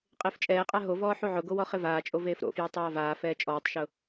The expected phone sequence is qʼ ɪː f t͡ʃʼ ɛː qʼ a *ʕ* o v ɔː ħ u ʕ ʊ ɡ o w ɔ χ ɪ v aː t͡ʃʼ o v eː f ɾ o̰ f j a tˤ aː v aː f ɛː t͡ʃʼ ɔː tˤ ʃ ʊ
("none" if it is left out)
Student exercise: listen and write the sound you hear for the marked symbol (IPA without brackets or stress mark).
ɦ